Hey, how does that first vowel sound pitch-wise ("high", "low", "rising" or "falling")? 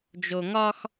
low